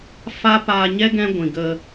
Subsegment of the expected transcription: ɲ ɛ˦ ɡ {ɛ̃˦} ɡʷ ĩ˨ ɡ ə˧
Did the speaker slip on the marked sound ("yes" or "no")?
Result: no